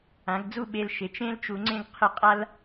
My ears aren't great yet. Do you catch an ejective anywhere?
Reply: yes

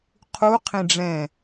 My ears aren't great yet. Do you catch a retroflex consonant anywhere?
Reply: yes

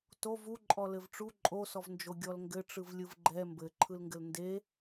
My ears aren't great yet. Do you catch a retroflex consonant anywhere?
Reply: yes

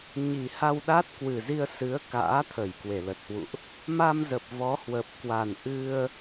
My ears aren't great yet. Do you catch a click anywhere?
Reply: no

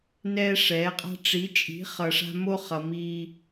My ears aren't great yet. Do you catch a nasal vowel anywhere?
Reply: no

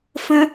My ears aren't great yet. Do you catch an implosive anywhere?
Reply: no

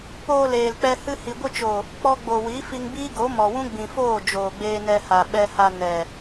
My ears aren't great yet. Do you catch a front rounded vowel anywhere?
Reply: no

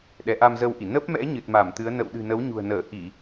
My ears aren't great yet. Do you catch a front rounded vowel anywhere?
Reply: no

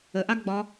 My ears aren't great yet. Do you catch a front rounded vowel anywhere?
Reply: no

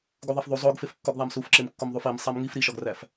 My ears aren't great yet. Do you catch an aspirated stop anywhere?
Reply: no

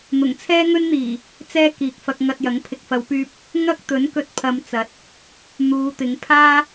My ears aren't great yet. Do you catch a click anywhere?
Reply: no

